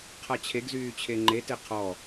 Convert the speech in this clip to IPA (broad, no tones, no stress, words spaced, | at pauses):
qʰat͡ɕʰeɡzyː t͡ɕʰeŋ͡ǃete qʰɔ